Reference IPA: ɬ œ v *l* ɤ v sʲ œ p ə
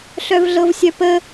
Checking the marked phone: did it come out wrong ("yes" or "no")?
yes